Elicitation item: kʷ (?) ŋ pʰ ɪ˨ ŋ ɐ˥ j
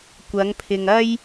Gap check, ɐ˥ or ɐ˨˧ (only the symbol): ɐ˨˧